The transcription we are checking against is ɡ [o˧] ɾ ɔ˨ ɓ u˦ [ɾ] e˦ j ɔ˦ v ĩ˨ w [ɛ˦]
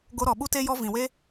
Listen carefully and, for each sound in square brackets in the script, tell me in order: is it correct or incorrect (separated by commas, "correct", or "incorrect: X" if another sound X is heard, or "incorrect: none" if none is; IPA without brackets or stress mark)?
correct, incorrect: t, incorrect: e˦